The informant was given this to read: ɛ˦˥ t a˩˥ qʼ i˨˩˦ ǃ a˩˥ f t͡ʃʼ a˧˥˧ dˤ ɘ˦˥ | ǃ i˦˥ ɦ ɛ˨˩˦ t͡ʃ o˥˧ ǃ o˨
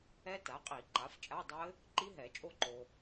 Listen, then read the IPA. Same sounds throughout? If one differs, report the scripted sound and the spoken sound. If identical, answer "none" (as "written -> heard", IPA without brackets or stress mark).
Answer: t͡ʃ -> t͡ʃʼ